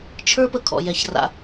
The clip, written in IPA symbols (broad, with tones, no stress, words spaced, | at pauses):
t͡ʃʰə˞˥ pə˧kʰɔ̰˩jɛ˩ç ra̰˩